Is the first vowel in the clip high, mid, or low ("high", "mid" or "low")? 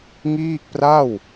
high